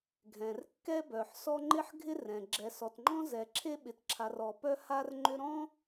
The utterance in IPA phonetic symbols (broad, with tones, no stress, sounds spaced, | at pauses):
ɡʱ ɛ̃˩ r kː ɛ˥ b œ˩ ħ s ɔ˥ ŋ͡ǃ ɪ˥ ħ ɡʱ ɪ˥ r ɛ̃˩ ɡ͡ǁ ɛ˩ s ɔ˩ t ŋ͡ǃ ɔ̃˥ z ɛ˩ ǁʰ e˥ ɓ ɪ˩ t ǁʰ a˩ r ɔ˩ p œ˥ h a˥ r ŋ͡ǃ ʏ˥ ɾ ɔ̃˥